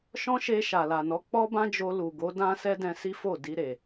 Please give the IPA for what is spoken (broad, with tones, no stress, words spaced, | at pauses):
ʃɔ̃˦ʃe˧ ʃa˨la˨nɔ˨˦ k͡pɔ˦bã˦d͡ʒo˧ lu˨ɡo˨˦ dã˦ sɛ˦dɛ̃˧si˦fo˦˨ di˧ɾe˨